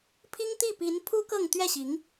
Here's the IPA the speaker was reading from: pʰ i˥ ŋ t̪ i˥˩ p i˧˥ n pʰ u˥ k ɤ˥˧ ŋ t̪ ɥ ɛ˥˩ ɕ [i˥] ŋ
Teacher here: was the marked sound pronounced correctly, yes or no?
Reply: no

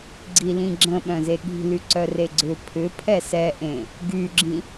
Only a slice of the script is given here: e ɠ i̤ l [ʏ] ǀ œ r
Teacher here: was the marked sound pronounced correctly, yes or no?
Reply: no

